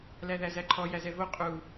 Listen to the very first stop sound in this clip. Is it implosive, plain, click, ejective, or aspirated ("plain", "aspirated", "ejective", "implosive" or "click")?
click